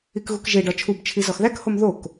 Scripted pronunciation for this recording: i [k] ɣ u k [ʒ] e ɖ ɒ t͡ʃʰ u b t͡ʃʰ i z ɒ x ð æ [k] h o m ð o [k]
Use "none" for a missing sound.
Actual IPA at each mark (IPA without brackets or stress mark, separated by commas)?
k, ʒ, k, k